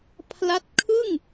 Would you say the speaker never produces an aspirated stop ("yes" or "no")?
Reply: no